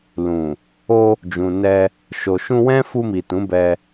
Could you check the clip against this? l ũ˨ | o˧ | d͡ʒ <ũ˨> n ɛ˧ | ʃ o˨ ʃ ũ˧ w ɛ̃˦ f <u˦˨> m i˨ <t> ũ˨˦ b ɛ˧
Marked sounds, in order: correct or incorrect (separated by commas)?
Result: correct, incorrect, correct